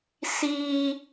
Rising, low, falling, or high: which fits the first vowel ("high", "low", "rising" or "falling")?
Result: high